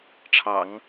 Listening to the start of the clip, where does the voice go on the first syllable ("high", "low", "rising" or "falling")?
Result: low